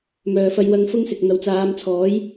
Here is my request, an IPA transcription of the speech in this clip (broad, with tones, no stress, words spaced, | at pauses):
mœː˨fɐ˧jwɐ˧ŋ fʊ˥ŋsɪ˨k̚ n̪ɐ˨˧wt͡saː˨˧mt͡sʰɔː˨˥j